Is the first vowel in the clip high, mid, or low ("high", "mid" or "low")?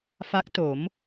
low